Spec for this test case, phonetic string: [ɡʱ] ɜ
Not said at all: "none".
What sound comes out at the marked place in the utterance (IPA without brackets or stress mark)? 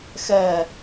x